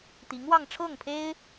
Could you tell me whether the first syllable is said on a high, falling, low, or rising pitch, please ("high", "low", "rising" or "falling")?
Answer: rising